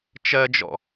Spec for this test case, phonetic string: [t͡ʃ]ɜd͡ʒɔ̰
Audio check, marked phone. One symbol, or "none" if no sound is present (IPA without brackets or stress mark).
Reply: t͡ʃ